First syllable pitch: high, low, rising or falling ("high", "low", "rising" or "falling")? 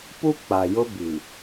high